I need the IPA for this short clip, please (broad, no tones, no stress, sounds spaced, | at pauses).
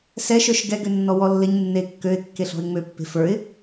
s ɛ ʃ ə˞ ʃ ɡ ɛ ɡ ø nː ɔ w ɔ lː ɪ ɲ nː e kː ø ɪ̯ kː e ɬ ɔ̤ ɪ̯ ŋ͡m ø pː e̤ f ə˞ ɪ̯